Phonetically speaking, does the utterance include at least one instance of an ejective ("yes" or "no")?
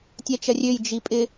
yes